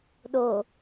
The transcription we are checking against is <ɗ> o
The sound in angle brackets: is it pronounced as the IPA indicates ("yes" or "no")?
yes